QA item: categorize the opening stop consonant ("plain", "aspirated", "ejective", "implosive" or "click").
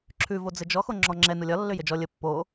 click